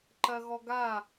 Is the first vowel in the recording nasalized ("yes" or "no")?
no